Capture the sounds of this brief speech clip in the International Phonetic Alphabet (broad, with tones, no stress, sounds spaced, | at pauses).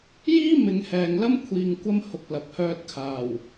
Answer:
j iː˥ m ɪ˨˧ ŋ h ɛː˨ ŋ l ɐ˥ m kʷʰ iː˨ ŋ kʷ ɐ˧ m h ʊ˨ k̚ l ɐ˨ p̚ h œː˧ t̚ kʰ aː˨˩ w